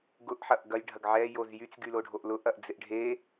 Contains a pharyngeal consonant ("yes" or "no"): yes